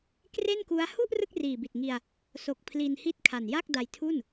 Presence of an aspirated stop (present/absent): present